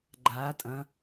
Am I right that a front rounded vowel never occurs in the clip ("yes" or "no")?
yes